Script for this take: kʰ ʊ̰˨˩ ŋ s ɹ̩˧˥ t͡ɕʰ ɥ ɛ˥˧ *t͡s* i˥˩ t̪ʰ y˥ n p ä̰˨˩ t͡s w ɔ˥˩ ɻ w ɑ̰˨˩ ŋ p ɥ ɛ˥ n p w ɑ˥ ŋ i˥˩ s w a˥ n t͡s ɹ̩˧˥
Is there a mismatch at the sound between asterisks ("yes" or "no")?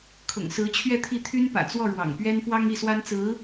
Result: yes